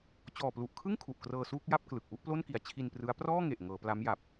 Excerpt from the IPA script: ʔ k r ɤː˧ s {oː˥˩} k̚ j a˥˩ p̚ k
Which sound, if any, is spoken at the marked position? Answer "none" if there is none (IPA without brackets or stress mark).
uː˥˩